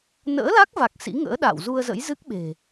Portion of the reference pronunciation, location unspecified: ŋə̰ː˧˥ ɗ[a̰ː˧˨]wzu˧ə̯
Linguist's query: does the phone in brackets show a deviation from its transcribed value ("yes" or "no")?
no